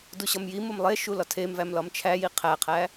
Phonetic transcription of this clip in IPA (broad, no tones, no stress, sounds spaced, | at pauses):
d u ɕ ɒ m j i m o m lˠ e ʃ u l ɒ tʰ e m v æ m l ɒ m t͡ʃʰ æ j i qʰ æ qʰ æ